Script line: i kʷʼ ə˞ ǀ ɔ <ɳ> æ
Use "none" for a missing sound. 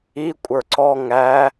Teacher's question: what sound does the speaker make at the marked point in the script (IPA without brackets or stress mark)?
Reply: ŋ